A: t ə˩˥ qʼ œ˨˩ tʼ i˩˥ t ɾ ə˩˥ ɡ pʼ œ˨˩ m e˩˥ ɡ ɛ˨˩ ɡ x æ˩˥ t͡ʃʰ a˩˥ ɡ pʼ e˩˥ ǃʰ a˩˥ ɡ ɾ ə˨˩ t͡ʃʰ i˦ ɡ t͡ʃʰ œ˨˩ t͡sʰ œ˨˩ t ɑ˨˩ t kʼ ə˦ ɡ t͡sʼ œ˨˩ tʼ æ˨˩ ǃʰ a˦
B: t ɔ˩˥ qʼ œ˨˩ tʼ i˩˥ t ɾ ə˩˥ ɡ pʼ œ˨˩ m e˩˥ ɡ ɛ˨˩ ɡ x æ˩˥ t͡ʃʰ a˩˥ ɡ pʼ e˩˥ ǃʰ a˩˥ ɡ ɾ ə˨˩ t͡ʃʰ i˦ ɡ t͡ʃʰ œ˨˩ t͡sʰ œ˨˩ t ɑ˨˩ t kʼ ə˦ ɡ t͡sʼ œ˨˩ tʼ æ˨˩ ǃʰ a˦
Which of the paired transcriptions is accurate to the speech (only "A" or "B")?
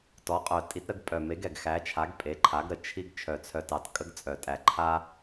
B